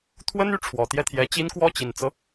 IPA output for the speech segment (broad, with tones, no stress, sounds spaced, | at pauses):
t̪ʰ w ə˥ n y˥ ʈ͡ʂʰ w ɔ˨˩ t̪ j ɛ˥˩ t̪ʰ j ɛ˧˥ t͡ɕ i˥ n k w ɔ˥˩ t͡ɕ i˨˩ n t͡s ɤ˦